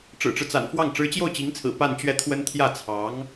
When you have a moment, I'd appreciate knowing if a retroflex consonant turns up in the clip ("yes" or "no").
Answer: yes